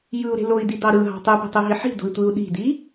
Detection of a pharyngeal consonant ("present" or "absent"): present